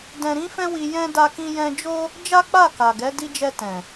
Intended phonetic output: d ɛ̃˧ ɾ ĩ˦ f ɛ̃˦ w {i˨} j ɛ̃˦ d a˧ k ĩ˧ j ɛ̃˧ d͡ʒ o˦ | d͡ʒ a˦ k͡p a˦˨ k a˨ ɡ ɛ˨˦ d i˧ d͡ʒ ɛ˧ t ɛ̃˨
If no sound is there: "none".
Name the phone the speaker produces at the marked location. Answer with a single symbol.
i˧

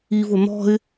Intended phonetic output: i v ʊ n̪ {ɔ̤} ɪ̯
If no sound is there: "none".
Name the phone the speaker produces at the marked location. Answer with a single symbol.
ɔ̤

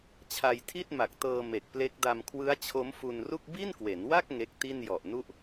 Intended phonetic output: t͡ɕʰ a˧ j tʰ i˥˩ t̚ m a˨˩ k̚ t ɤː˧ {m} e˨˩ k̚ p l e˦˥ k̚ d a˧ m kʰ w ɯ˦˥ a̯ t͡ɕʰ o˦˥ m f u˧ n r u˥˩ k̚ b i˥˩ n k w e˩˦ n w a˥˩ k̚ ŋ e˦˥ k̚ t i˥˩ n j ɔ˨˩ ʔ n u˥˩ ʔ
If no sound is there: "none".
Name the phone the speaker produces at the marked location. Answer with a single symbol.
m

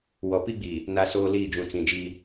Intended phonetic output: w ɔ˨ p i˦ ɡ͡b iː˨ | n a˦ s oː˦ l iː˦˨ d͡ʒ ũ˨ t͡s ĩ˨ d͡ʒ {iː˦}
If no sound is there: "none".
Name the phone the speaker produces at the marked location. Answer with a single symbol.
iː˦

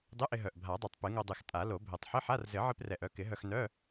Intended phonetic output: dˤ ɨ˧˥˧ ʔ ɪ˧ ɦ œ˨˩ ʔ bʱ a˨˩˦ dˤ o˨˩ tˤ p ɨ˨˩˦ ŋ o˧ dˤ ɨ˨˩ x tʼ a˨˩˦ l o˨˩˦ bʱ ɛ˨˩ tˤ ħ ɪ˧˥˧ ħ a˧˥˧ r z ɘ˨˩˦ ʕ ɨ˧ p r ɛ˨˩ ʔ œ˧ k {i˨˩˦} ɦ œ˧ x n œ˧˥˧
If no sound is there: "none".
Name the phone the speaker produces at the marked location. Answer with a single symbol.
ɪ˨˩˦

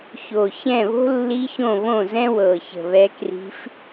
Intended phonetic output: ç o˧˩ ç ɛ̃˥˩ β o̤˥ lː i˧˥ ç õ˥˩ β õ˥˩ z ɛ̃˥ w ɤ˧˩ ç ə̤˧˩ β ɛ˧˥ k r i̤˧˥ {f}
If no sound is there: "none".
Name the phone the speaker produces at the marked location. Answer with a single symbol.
f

